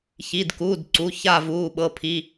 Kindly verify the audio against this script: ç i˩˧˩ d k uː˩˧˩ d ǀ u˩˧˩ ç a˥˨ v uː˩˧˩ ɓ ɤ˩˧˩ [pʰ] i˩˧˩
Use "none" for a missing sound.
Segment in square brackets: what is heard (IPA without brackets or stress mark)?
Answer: pʰ